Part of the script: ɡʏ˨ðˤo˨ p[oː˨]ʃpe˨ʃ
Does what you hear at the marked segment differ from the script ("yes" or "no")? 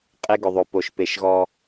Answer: yes